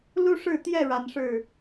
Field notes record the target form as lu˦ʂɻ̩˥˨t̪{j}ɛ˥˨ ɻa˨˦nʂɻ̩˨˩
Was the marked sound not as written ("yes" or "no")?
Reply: no